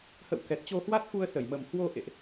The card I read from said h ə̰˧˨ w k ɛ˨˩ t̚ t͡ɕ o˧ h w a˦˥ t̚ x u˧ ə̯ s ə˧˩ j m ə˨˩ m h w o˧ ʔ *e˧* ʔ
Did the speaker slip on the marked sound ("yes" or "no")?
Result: yes